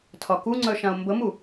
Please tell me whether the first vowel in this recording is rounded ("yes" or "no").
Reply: yes